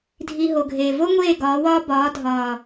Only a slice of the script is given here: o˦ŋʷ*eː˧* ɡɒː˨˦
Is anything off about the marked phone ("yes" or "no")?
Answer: yes